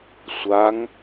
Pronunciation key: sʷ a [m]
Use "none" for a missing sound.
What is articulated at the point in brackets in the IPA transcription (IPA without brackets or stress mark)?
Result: ŋ